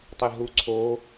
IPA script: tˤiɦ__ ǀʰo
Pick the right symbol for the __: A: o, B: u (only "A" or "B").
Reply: B